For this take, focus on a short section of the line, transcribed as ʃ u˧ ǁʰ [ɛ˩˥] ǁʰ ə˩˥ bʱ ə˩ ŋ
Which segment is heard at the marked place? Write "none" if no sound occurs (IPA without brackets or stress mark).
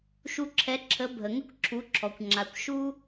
ɛ˩˥